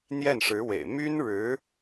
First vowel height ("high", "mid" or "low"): mid